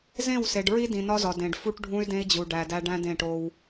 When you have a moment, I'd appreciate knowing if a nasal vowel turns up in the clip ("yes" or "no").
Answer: yes